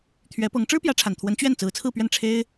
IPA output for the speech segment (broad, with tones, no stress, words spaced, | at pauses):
t̪ʰɥɛ˧˥ pɤ˧˥ŋ ʈ͡ʂɻ̩˥pjä˧˥ʈ͡ʂʰa˨˩nt̪ʰwə˧˥n t͡ɕɥɛ˥˩n t͡sɹ̩˧˥t͡sʰɹ̩˥˧pɥɛ˥˩n ʈ͡ʂʰe˥ɪ̯